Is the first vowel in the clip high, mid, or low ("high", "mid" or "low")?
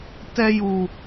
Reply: mid